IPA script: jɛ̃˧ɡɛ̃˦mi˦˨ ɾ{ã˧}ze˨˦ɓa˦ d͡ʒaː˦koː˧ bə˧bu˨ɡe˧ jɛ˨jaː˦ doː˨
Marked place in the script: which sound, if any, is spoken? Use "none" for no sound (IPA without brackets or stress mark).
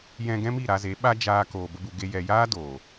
a˧